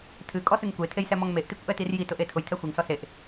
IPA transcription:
tʰɨkʼɔsɨŋ kʷetʰejsɛmɔŋ meʔtikʷʔɛtir jitʊʔe tʰʊjtʰɛ xʷeŋsɔ seʔ

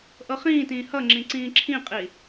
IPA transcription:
ʔɤχĩːtĩː hʌŋ͡ǁĩ ǀĩːǁʰĩqʼi

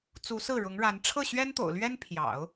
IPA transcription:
t͡su˧˥sɹ̩˥˩ɻʊ˧˥ŋɻa˧˥n ʈ͡ʂʰɤ˥˩ɕɥɛ˥nt̪o̰˨˩ʊ̯lɥɛ˥n pʰjɑ̰˨˩˦ʊ̯

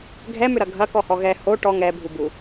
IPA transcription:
ɡʱɛmʏɾɐ ɡʱɐ kɔhɔɣɛ ho ʈɔ ŋɛ bʱubu

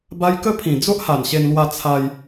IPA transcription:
ba˧jkə˦pʰĩ˨˩ d͡zo˦ʔha˨˩nɕe˧nlwa˧ t͡sʰa˧j

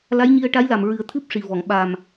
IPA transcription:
la˧˥jɲi˧ə̯ ʈa˧˥jla˨˩m ɹɨ˨˩˦ə̯t̪ʰɨ˦˥p̚ʂi˨˩vɔ˨˩˨ŋ ɓa˨˩m

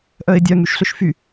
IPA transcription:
ʔœɪ̯dʲœŋ yʃɬʏʃfy

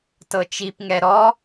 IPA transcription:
tɤt͡ʃipŋɛ ɾɔ

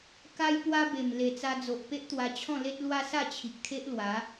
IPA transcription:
ka˦j pwa˦be˨˩m le˨˩t͡sa˧d͡zo˨ʔ pe˦ʔt̪wa˧t͡ɕʰɔ̃˥˧le˦t̚ lwa˦sa˥˧t͡ɕʰi˨k̚t̪ʰe˦ʔ lwa˨˦

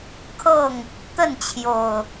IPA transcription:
kʰɤ˥˨ŋ | t̪ə˥˨nt͡ɕʰjo˨˩ʊ̯

